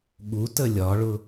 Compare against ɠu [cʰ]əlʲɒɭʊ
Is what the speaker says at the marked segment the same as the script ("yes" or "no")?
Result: no